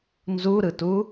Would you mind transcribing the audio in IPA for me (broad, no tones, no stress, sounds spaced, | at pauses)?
n z u ɾ ɯ t u